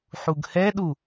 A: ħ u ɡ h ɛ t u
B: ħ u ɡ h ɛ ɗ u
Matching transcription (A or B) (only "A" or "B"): B